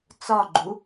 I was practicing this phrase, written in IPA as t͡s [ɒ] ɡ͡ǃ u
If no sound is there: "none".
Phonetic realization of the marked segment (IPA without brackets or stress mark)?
ɒ